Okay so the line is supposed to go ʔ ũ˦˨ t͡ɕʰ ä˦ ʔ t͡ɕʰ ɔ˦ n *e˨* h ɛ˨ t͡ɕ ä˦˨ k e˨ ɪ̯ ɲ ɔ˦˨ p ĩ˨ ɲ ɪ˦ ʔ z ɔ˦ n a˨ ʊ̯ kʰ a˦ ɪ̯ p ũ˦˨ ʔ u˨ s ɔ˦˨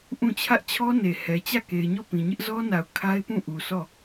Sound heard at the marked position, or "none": e˨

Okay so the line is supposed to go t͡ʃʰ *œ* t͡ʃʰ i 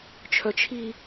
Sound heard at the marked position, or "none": œ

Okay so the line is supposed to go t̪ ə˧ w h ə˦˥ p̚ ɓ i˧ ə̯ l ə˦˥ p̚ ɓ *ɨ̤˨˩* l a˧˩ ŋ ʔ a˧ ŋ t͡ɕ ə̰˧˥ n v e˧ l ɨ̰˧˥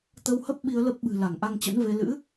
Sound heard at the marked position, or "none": ɨ̤˨˩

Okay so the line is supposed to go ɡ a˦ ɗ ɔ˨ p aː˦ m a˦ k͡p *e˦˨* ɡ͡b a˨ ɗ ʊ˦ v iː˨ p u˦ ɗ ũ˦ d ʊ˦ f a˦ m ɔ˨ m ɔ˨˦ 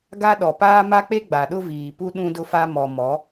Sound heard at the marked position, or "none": e˦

